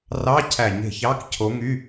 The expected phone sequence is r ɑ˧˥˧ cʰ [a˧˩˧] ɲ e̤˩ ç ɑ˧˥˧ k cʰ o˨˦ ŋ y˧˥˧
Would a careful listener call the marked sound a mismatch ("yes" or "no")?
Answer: yes